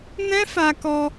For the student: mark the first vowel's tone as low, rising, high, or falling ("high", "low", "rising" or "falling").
high